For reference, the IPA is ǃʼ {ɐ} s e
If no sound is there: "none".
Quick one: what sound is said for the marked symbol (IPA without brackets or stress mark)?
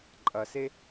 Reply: ɐ